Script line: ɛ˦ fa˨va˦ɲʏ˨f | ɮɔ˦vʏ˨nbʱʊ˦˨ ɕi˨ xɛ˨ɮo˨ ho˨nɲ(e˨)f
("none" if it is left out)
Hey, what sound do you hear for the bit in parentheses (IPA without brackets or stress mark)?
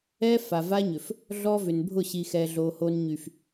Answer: y˨